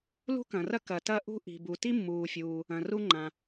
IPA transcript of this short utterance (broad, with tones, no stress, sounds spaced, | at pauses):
l ṳ˥ k ɐ̃˩ r ɐ˥ k ɐ˩ t ɐ˥ ʔ ṳ˥ ʔ i̤˩ b u˩ t i˥ mː uː˩ fʲ uː˩ | ɐ̃˩ r u˥ ŋ͡ǃ ã˩